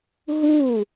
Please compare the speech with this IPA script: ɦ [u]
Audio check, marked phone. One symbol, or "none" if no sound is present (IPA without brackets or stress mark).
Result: u